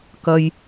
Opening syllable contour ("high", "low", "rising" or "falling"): low